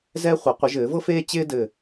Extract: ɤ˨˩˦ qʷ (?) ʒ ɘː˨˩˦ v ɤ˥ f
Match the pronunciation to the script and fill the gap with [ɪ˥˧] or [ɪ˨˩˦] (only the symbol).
ɪ˨˩˦